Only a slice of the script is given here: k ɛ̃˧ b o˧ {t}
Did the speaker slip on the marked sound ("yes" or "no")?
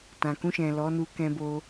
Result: yes